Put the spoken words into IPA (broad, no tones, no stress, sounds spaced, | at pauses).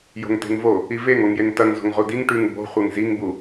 j o̤ ŋ t e̤ ŋ v o | i v e ŋ o ŋ j e ŋ t ɐ ŋ z o̤ ŋ ʁ u d i ŋ ʈ ʉ ŋ b o̤ χʷ e ŋ z i ŋ b u